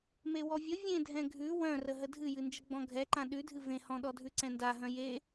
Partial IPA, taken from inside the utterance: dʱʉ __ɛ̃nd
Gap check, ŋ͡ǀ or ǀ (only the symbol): ǀ